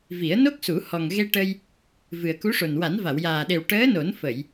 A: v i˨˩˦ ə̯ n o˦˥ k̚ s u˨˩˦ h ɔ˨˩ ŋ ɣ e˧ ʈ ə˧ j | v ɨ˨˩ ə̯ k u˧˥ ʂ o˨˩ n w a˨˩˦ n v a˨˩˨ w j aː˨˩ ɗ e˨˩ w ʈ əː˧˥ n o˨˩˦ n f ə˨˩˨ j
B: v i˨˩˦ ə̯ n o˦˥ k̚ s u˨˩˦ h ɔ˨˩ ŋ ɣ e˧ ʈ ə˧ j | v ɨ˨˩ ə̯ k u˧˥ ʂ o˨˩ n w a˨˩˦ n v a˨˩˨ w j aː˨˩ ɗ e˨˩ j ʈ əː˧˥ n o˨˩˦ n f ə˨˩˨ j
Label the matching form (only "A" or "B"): A